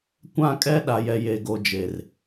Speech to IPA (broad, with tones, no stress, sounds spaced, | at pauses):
kʷ ã˦˨ kʼ ɛ˦ ɗ a˨ j ɛ˨ j e˨ ɡ o˨ d͡ʒ e˨ r